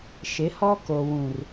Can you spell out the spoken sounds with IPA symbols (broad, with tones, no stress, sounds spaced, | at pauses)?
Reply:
ʃ ɪ˨˦ h ɔ˦ k o˨ w ũ˨ r